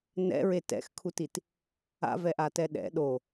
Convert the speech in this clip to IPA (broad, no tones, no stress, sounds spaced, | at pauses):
n ɛ̰ ɹ e t ɛ̰ x kʰ u t i t | a̰ v ɛ ʔ a t ɛ ɗ ɛ̰ ɗ o